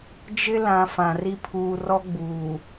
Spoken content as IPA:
d͡ʒ ɪ˦ l ã˨ f ã˨ r i˦ pʰ uː˨ r ɔ˦ ɡ͡b uː˨

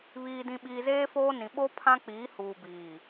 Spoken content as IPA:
β iː˨ d ĩ˨ ɓ iː˨ z eː˦ f oː˦ n ĩ˨ ɓ o˦ pʰ ã˦ k͡p iː˨˦ h uː˨ b iː˨

